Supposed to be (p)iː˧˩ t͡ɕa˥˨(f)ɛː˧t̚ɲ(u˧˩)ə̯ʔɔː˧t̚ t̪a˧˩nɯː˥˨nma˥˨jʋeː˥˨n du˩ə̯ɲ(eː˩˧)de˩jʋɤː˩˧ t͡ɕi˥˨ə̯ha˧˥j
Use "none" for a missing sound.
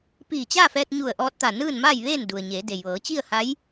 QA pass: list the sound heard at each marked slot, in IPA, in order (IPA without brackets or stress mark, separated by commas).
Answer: p, f, u˧˩, eː˩˧